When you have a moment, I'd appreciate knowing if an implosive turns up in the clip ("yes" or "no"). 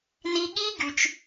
yes